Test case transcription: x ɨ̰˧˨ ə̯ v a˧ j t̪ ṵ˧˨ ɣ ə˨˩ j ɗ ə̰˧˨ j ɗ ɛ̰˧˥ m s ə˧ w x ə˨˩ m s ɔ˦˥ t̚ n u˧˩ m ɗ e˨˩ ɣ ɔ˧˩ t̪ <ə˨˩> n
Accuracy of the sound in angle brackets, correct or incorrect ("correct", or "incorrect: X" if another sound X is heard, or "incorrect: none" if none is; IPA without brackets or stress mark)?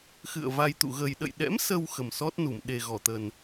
correct